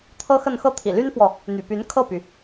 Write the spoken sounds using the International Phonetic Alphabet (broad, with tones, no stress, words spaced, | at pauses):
t̪ʰɤ˥xə˥˧n xɤ˥˩t̪ʰḭ˨˩ly˥nfwɔ˨ | n̪y̰˨˩py˧˥n kʰɤ˥˩py˩